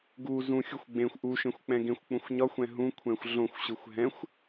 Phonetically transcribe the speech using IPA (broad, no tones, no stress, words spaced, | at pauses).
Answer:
ɡu zũxʲuxʷ ɡ͡bẽxʷ ʔuʃẽxʷk͡pɛ̃ ɡẽxʷk͡pũxʷ ɲɒxʷɛ̃ ɦũkʷʰɛ̃xʷ ɮõxʷɕɯxʷ ɦɛ̃xʷ